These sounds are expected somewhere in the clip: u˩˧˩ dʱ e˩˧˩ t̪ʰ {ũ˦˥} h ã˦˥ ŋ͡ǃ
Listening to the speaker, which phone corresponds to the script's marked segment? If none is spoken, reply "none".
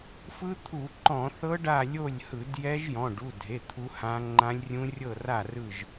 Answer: u˦˥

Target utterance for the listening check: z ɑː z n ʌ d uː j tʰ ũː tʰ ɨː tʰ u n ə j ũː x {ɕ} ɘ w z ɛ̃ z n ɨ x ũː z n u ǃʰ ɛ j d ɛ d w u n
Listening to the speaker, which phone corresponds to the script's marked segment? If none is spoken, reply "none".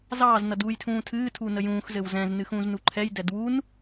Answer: z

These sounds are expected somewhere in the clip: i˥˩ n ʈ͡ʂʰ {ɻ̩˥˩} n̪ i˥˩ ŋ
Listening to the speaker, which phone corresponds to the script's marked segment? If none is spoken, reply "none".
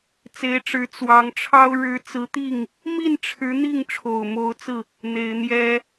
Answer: ɻ̩˧˥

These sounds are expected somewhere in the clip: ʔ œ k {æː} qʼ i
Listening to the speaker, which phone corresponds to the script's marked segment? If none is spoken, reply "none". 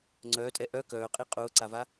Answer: œː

